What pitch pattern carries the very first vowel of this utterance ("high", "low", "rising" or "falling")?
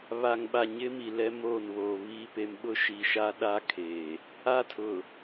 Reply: low